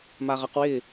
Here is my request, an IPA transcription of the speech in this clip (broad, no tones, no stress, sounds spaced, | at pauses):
m a ʁ ʌ q w ɪː